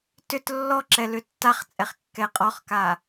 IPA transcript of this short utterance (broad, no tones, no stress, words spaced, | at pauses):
tʏt lːɔǁɛ lʏtːaχt͡sʼɛχ kːɛqʼɔχka